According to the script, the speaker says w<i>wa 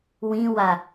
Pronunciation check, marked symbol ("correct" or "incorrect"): incorrect